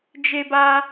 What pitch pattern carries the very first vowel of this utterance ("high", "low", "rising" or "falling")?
high